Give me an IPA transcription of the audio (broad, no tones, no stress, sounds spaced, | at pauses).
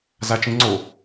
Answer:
z a t͡ʃ ĩ ŋ͡ǀ o